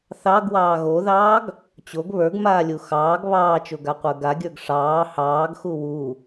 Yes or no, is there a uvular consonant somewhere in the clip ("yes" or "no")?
yes